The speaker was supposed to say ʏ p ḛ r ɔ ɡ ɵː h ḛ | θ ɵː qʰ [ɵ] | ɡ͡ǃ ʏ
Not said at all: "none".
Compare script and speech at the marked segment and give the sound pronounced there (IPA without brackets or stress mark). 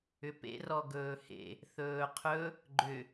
ɵ